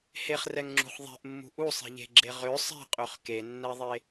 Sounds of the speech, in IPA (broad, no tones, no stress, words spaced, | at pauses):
heχrɛŋŋ͡ǁṳχ ðˤe̤ʔmːṳ ʔusˤe̤ʎe̤ɡ͡ǁe ʁø sˤe̤qʼøχ kenːɛðˤe